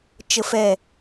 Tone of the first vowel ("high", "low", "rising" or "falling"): low